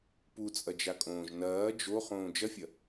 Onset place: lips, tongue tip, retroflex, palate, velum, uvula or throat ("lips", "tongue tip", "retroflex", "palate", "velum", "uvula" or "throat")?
lips